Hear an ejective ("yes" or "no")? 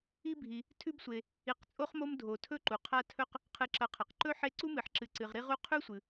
yes